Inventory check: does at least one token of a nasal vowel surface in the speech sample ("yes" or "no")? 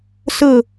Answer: no